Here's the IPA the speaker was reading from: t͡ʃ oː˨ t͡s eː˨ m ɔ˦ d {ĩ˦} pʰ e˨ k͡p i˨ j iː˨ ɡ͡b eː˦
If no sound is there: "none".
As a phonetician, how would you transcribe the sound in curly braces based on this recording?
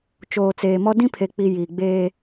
ĩ˦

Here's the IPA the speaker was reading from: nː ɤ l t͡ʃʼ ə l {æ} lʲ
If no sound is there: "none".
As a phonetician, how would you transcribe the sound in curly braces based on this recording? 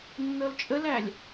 æ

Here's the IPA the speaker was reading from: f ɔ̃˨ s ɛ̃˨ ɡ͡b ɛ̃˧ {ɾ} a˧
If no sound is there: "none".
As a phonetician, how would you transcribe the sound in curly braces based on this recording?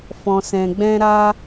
ɾ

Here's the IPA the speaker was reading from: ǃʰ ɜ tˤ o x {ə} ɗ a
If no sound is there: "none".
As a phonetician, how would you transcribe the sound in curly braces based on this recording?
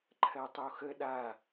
ə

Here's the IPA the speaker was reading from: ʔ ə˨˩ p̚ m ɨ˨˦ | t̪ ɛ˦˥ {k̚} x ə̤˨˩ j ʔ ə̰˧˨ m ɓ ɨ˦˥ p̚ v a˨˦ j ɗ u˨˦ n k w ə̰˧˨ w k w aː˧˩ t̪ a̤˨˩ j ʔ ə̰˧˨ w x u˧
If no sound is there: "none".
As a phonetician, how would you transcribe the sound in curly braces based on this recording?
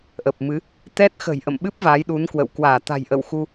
t̚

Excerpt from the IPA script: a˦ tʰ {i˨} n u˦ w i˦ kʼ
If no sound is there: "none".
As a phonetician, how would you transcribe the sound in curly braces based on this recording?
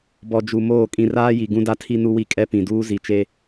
i˦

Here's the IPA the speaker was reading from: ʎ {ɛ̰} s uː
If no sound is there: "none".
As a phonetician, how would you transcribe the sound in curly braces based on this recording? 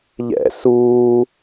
ɛ̰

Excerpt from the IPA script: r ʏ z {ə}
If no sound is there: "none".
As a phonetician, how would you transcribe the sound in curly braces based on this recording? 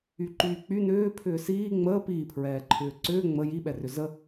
ə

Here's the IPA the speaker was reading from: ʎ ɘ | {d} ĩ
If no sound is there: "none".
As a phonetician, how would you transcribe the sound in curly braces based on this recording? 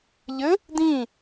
d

